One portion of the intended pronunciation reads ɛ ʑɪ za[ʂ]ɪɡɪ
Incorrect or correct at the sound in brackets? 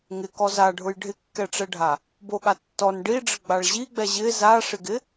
correct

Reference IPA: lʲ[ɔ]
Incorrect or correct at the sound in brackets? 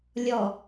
correct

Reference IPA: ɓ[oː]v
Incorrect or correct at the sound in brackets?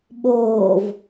correct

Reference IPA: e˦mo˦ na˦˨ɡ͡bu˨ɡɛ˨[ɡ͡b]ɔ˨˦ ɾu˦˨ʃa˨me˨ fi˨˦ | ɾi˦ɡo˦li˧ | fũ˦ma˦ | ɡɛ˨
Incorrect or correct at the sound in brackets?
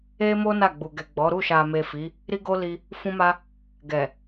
correct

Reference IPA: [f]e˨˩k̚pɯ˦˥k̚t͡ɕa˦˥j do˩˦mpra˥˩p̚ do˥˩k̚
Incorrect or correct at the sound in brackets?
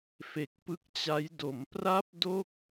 correct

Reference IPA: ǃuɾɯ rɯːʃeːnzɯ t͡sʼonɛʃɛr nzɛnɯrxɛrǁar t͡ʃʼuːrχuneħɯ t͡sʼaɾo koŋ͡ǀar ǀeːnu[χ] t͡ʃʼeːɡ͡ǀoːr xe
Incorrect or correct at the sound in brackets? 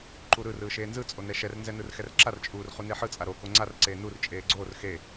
incorrect: r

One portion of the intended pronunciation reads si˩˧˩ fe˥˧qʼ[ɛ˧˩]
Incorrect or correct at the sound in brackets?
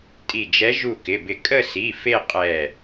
correct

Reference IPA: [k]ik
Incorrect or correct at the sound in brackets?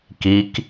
correct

